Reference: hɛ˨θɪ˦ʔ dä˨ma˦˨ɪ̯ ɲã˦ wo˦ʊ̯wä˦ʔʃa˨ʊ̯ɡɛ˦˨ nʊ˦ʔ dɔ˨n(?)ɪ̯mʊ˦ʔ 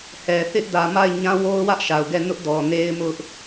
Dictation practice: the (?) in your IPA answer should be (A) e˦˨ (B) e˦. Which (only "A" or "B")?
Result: B